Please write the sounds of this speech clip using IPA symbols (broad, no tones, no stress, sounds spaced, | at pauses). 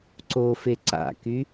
ǀ o f e ǀ a̰ k y